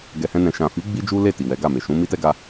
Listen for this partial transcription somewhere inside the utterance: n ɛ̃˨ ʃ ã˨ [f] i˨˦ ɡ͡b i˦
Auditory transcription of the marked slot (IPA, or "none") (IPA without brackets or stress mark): f